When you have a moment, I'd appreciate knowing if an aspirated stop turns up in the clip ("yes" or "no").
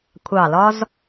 yes